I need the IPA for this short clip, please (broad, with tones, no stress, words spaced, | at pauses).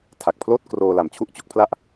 tʰa˨˩k̚pʰloː˥˩t̚ kroː˧la˨˩m t͡ɕʰu˥˩ʔt͡ɕo˦˥k̚ pʰla˥˩ʔ